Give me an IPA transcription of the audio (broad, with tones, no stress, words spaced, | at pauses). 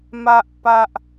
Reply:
ma˨ʔpa˨ʔ